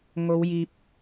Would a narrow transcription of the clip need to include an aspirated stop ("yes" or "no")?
no